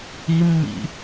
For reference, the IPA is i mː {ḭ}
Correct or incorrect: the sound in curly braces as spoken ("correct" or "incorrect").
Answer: correct